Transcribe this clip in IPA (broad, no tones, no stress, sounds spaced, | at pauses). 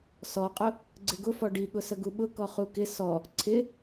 s ɔ qʼ ʊ | ɡ͡ǀ ɪ ɡ ʊ f ɔ ɖ i ɠ ʊ s ə ɡ u ɓ ʊ k ɔ χ u k ɪ s ɔ | ǀʰ ɪ